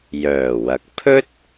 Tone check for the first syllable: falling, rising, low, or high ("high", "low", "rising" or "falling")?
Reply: low